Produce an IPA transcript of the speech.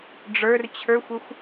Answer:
ɖ͡ʐ ə˞ r t͡ɕʰ ə˞ xʷ ə xʷ

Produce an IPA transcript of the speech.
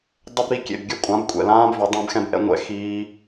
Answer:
dˤ ɵ˧ b ɾ i˨ kʲ ḛ˨ b ɡʲ ɵ˦˨ kʷʼ ã˨˦ b kʷʼ ɛ̰˨ l ãː˦ b v ɵ˨˦ dˤ ɛ̃˧ b x ɛ̃˧ b ʔ ɛ̰˧ ŋʷ ɛ̰˧ x iː˧

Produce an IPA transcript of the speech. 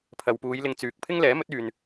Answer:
pʰ ɐ˨ w p uː˨˧ j l ɪ˨ ŋ t͡s yː˨ k̚ pʰ ɪ˥ ŋ l ɛː˨˥ m ɵ˨˥ t̚ yː˨ n

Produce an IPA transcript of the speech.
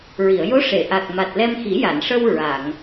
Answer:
ɹ i˨˩˨ ə̯ j o˧˥ ʂ e˨˩˨ ʔ a˨˩ k̚ m a˨˩ t̚ l ɛ˧ m x i˨˩˦ j a˨˩˨ n ʂ ə˧ w ɹ a˨˩˨ ŋ

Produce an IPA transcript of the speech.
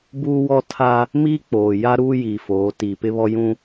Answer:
b uː˦ w ɔ˦ tʰ a˦ | m iː˦ k͡p oː˨ j a˦ ɾ uː˦ j iː˨ f oː˨˦ t iː˨ p ɪ˦ β ɔ˦ j ũ˦

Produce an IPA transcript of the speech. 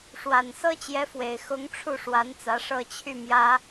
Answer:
ʂ w a˨˩ n s ɤ˥ t͡ɕ j ɛ˧˥ f w e˨˩ ɪ̯ x ʊ˧˥ ŋ ʈ͡ʂʰ u˥˩ ʂ w a˧˥ n t͡s ä˧˥ ʂ ɤ˥˧ t͡ɕʰ y˥˩ m j ä˥

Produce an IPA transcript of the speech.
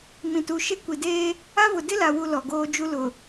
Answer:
m ĩ˨ t u˨ ʃ e˦ kʷ i˨ d eː˦ | a˦ v ʊ˨ d ɪ˦ l a˨ w u˨ l ɔ˨ ɡ oː˦ d͡ʒ u˦ l ʊ˨

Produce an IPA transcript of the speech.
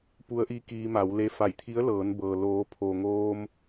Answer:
p u˧˥ ə̯ ʔ iː˧˥ k iː˧ m a˩˧ w l e˧ f a˧˩ j t̪ʰ i˧˥ ə̯ l ɤː˩˧ n b ɤː˩ l oː˩˧ pʰ oː˩ ŋ oː˧ m

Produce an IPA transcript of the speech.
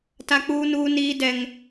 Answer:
t a˦ k͡p uː˦ n uː˦ n iː˦ d ɛ˦ ŋ

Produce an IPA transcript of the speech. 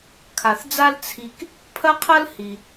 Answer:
kʰ a˩ θ d͡z a˥ l t͡sʰ i˧ k | pʰ ɐ˥ qʰ ɐ˥ l h i˩

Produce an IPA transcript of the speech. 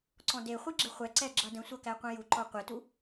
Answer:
ǀ ɔ̃ d e χʷ i ɡ͡ǁ ɪ χʷ ɛ ǀ ɛ ɡ͡ǁ ʌ d ə̃ sʷ ʌ k æ qʷ ɛ̃ j u ǃ ɔ qʷ e t u

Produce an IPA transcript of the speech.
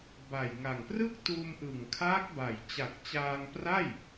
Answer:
b a˨˩ j ŋ a˨˩ ŋ p r ɯ˥˩ k̚ t uː˧ m ʔ ɯ˨˩ ŋ kʰ aː˦˥ k̚ b a˨˩ j t͡ɕ a˨˩ k̚ t͡ɕ aː˧ ŋ p r a˥˩ j

